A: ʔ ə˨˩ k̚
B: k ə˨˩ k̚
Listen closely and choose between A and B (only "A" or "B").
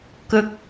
B